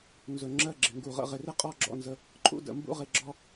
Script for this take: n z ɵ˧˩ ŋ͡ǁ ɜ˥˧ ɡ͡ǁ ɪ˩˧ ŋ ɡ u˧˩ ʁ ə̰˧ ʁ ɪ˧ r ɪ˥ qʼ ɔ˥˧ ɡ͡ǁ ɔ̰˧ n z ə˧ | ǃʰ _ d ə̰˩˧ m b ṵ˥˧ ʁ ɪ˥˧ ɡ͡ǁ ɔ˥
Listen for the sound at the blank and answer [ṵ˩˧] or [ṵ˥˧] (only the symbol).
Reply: ṵ˥˧